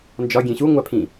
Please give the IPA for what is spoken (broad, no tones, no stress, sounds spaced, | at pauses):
n d͡ʒ ɒ ɡʲ ẽ ɕ u ŋʷ æ pʰ ĩ